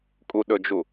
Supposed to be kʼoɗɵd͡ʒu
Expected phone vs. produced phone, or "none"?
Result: o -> u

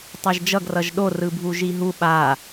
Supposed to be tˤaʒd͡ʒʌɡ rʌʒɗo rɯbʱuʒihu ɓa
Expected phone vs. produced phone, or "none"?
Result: h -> ɦ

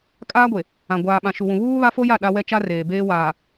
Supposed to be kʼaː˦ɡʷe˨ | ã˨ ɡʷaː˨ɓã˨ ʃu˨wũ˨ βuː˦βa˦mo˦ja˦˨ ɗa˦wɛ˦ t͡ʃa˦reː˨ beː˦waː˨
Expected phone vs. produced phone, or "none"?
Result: m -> f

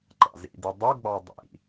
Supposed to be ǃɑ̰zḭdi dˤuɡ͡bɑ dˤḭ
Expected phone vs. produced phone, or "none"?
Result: none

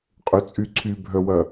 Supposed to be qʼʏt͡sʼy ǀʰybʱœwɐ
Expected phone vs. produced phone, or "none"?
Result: none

